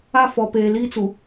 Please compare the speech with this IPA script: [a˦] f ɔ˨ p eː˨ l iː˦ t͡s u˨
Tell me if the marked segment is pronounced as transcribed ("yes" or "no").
yes